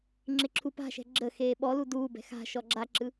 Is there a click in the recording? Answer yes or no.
yes